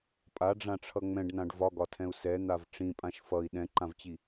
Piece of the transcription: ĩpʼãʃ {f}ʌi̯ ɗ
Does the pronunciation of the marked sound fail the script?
no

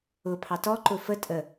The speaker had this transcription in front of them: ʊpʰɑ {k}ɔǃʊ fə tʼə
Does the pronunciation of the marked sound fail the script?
yes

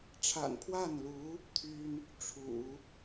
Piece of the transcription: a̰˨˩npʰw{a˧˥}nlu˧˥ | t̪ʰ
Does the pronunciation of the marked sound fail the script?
yes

